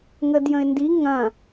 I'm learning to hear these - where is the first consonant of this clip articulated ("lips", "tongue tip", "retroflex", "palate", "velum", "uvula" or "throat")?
velum